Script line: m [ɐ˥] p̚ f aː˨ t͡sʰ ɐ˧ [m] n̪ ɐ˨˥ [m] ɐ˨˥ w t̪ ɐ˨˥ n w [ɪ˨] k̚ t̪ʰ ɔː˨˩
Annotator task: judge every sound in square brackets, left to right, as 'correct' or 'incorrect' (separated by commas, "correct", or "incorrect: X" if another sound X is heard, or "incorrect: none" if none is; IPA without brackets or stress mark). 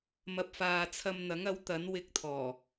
incorrect: ɐ˧, correct, incorrect: ŋ, incorrect: ɪ˧